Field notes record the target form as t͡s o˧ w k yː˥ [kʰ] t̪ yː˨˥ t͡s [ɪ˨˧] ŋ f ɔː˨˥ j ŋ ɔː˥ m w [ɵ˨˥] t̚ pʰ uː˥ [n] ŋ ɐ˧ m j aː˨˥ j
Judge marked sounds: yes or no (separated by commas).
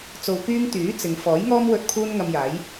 no, yes, no, yes